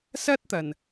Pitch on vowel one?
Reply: high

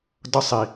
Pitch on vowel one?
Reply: high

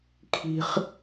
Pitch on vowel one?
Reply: high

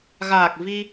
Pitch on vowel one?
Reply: low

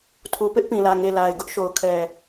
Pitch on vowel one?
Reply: low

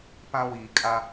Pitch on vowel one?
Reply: high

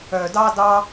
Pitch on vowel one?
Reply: low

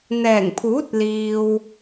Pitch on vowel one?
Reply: low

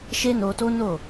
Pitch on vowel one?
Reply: high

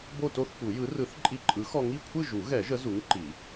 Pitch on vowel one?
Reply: falling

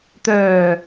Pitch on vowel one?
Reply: low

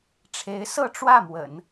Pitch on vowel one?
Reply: rising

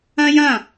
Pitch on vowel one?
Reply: high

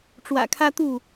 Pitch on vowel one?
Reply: low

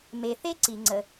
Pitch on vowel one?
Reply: low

